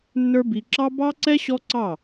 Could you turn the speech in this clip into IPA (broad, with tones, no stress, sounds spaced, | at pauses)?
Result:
nː ə˞˦ b i˧ ǁ ɑ˦ b ɑ˦ ǀ ɛ˦ ɕ ɔ˦ ǀ ɑ˦˨